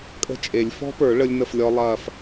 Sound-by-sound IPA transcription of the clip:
kʼə̤˦˥t͡ʃʼe˨˩˦lʲ fɔ̤˦˥pə˞˨˩˦ ɭə˦˥lʲnə˥˨flʲɔ˦˥ lˠɐː˥˨f

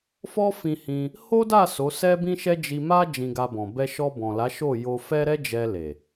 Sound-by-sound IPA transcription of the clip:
fɔ˦fĩ˧hĩ˧ | ho˦da˦˨ so˨˦sɛ˦bĩ˦ʃɛ˦ d͡ʒi˧ma˦ d͡ʒĩ˧ɡa˧bɔ̃˨ bɛ˧ʃɔ˧bɔ̃˨la˨˦ ʃo˦˨jo˧ fɛ˦ɾɛ˦d͡ʒɛ˧le˨

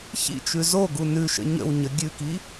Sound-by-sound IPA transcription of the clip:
çḭ t͡ʃʉzoɡu nʉ ʃə̰ɲə̰wɲə ɡʲʉki

